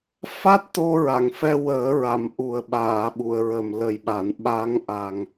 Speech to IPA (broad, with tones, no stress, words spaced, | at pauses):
fa˦˥t̚t̪o˧ɹa˨˩˨ŋfɛ˧ wəː˨˩˦ ɹa˨˩˨m ʔu˨˩ə̯ɓaː˨˩˨ɓu˨˩˨ə̯ɹə˨˩m lə˨˩jɓa˨˩˨n ɓa˧˥ŋʔa˨˩ŋ